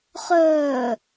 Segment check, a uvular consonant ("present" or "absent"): present